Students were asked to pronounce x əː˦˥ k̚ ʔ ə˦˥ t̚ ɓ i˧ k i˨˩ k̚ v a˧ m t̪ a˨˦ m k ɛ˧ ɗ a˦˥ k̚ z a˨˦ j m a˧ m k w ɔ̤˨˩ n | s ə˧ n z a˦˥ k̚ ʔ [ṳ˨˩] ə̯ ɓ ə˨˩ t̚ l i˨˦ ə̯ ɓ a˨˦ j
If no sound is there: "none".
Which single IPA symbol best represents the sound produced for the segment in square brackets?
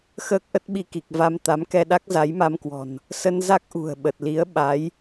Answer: ṳ˨˩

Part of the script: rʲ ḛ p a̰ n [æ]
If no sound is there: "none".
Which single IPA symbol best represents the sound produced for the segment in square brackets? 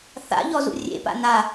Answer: a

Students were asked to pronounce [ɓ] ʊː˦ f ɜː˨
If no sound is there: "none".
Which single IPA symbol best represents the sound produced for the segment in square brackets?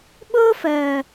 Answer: ɓ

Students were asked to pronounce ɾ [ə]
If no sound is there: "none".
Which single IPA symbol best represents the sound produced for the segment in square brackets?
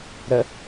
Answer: ə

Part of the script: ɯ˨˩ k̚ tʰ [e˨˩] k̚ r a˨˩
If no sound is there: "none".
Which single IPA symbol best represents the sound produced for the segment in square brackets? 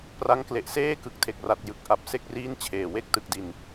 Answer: e˨˩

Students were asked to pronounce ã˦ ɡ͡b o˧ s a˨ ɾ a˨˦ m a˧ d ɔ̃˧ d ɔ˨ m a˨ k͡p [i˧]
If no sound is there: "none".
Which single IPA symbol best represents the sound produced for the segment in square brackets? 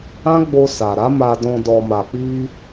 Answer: i˧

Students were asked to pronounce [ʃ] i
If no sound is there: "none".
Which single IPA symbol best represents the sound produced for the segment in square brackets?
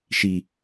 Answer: ʃ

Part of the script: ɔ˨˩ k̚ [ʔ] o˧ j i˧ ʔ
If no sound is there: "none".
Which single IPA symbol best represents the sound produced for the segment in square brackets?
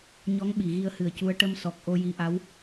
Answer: ʔ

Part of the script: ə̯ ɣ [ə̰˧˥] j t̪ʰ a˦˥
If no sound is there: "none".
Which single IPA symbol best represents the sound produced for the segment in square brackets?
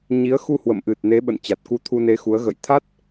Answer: ə̰˧˨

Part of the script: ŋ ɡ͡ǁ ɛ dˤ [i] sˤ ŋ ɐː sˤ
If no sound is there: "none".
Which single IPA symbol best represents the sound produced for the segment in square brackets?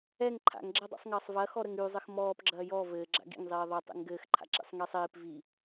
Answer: ḭ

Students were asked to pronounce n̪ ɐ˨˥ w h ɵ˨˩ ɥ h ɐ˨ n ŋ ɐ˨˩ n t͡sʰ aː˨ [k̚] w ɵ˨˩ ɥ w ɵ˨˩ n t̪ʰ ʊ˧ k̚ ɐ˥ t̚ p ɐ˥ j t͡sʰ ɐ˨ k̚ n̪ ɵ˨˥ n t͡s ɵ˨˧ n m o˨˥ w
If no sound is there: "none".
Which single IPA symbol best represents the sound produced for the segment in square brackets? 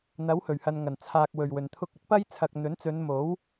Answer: k̚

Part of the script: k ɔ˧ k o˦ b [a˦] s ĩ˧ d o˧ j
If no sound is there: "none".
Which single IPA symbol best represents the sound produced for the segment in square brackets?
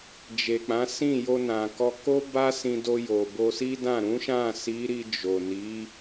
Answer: a˦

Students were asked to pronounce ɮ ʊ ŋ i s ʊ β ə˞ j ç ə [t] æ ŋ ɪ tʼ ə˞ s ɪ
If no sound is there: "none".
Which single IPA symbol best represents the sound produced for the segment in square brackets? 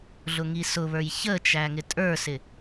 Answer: t͡ʃ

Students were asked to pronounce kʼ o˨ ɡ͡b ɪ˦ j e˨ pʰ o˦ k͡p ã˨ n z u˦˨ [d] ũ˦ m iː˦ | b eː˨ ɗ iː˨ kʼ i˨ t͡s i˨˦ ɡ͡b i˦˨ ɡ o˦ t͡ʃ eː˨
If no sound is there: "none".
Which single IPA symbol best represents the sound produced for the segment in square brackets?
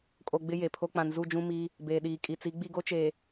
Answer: d͡ʒ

